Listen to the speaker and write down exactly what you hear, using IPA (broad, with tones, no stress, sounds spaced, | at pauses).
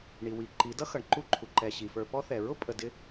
ɳ i˨ w i˨ ǃ i˨˦ d ʌ˦ x ʌ˨ ɳ ǃ u˦˨ ǃʰ u˨ ǃ ɛ˨ ɕ i˨ f ə˞˧ p ɔ˦ θ ɛ˨ ɹ ʊ˦ pʼ ə˨ d ɪ˧